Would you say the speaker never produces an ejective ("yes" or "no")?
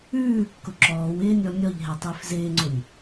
yes